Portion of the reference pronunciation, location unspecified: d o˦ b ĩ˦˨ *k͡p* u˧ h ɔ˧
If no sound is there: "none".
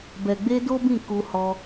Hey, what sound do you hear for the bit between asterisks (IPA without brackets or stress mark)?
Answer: k